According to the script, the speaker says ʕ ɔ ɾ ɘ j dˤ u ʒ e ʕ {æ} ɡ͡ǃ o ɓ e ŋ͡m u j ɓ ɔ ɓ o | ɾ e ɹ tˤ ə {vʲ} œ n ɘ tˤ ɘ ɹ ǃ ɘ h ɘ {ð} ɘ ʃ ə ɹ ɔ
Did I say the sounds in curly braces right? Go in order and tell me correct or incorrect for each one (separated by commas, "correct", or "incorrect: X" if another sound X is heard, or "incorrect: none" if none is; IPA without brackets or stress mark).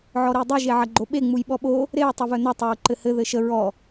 incorrect: ɐ, incorrect: v, correct